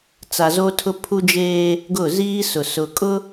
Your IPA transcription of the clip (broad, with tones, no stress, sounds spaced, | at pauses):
t͡s a˨ z o˦ tʰ ʊ˦ pʰ u˦ d͡ʒ eː˦ | ɡ ʊ˦˨ z iː˦ s ʊ˨ s ʊ˨ kʼ ʊ˦